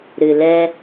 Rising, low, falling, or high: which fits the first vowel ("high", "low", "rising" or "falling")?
low